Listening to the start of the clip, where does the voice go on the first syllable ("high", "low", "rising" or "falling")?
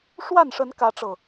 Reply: falling